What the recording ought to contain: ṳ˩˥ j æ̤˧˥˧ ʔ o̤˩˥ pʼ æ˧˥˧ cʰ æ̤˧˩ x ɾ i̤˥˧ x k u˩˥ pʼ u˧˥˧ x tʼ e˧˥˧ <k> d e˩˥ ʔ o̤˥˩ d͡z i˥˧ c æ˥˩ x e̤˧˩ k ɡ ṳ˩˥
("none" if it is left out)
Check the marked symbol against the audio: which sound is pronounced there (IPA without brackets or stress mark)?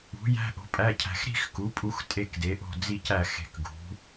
k